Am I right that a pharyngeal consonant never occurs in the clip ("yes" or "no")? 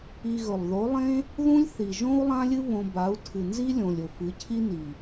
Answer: yes